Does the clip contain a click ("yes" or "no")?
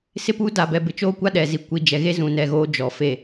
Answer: no